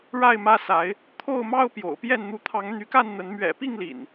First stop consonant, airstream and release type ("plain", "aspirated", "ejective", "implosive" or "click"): aspirated